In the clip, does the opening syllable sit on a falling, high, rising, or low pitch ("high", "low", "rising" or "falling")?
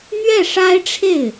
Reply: falling